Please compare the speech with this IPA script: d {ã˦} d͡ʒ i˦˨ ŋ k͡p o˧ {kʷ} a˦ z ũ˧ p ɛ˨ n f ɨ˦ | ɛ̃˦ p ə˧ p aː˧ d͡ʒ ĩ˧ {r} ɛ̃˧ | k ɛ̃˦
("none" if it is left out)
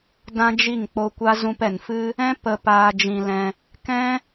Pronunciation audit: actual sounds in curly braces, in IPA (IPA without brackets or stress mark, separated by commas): ã˦, kʷ, l